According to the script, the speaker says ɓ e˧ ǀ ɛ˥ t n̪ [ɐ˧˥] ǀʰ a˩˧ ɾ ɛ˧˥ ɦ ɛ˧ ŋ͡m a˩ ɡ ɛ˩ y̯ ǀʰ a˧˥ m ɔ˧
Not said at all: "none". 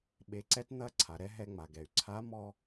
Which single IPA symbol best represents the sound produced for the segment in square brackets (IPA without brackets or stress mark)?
ɐ˧˥